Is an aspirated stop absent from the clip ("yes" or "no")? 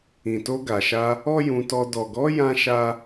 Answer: yes